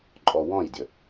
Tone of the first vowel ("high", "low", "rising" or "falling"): low